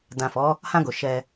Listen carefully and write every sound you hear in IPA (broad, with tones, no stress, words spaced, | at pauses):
dã˨fɔ˨˦ | hã˧ɡo˨ ʃɛ˧